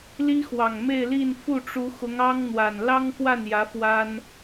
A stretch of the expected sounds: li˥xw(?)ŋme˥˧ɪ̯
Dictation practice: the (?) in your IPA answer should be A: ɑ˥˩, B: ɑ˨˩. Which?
B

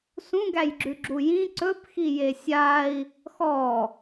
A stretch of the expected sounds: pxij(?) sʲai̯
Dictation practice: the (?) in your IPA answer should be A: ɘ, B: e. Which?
B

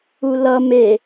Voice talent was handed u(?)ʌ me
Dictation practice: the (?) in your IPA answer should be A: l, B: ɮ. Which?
A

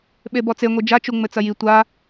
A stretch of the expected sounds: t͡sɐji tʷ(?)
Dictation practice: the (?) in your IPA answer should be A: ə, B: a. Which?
B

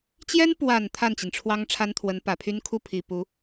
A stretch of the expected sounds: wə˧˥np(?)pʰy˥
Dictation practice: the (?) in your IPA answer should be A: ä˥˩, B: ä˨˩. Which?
B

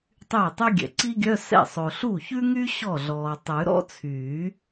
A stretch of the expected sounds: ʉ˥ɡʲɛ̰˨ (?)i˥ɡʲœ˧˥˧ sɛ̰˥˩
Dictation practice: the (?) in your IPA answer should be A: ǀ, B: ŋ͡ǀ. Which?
A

